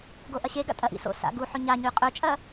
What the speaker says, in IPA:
ɡ o ʔ ɐ ɕ e ɡ a̰ tʼ ɐ ʔ ḭ s o̰ s a̰ ɡ u ħ ɵ ɲ a ɲ ʉ qʼ ɵ t͡ʃʼ ɐ

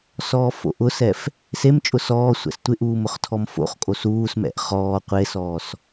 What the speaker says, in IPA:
s ɔː f o̰ ʔ ʊ s ɛ f | s e m t͡ʃʼ ʊ s ɔː sʷ ɛ̰ s tʷ ɪ ʔ uː m ʊ χ tʰ ɔ m f o̰ χ kʼ o s uː s m ɛ̰ ʔ χ ɔː qʷ e s ɔː s

